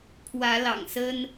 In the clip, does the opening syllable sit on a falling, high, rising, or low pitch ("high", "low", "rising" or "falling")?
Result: rising